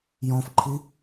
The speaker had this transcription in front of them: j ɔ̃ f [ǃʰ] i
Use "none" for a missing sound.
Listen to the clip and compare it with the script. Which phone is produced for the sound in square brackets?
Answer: ǃʰ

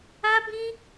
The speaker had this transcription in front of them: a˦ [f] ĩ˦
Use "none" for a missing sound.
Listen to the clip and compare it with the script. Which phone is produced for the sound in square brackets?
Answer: b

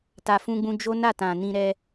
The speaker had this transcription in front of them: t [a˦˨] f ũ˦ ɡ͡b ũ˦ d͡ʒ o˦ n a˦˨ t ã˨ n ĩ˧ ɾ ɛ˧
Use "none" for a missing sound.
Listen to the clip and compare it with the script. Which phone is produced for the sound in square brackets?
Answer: a˧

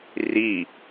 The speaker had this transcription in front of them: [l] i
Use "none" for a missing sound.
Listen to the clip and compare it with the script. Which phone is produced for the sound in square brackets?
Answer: r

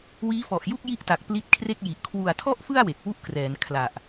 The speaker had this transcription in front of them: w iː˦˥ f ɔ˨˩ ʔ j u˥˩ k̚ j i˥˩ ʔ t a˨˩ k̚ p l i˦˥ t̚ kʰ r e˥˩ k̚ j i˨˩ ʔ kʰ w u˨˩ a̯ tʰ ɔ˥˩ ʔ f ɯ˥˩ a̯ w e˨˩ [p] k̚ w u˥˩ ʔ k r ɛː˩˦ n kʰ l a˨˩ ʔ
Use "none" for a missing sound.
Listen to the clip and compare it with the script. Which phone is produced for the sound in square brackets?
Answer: none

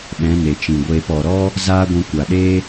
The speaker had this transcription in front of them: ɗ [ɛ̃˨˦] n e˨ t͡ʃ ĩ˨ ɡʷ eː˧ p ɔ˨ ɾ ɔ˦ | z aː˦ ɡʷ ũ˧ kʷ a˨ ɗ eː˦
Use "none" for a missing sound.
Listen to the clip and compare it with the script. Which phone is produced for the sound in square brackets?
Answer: ɛ̃˨˦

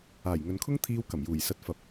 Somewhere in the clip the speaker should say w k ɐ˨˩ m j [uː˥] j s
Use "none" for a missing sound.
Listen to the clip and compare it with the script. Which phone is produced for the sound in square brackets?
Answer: uː˨˩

